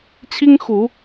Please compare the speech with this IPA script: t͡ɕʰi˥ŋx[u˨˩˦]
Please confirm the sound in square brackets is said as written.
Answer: yes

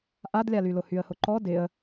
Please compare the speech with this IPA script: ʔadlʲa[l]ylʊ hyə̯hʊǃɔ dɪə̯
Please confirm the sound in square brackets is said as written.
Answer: yes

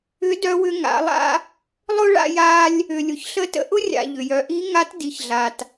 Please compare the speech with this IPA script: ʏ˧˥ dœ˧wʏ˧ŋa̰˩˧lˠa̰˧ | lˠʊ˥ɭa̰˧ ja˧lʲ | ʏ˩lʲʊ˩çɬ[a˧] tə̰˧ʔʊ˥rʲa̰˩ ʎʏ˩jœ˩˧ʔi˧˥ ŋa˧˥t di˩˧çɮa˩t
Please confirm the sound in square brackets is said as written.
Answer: no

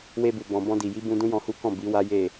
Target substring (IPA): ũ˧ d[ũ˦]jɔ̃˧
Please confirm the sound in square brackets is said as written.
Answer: yes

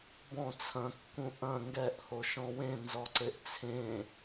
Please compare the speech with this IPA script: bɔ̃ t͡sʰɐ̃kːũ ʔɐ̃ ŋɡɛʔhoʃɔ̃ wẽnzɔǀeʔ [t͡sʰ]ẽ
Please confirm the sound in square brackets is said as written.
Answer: yes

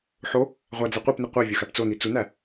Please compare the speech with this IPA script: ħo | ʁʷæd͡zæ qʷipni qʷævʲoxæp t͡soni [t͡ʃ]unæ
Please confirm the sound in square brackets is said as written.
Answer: no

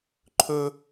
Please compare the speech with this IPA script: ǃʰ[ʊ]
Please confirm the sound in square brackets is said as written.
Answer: no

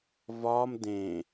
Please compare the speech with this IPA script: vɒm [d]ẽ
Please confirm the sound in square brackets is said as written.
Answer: yes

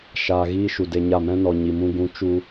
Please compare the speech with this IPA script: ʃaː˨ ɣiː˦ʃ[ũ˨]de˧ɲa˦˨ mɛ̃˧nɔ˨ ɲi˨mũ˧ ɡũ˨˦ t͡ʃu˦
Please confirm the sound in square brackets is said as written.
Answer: no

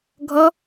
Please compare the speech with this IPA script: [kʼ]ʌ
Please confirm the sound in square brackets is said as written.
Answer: no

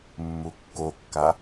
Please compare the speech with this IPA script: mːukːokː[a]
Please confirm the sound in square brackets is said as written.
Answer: yes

